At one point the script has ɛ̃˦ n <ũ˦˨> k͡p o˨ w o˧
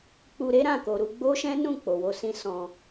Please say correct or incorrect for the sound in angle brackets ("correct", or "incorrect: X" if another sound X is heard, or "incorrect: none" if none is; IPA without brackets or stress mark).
correct